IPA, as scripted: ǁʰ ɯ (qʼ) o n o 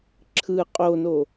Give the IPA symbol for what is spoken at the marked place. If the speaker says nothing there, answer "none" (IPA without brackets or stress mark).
qʼ